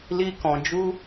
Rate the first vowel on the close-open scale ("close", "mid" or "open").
close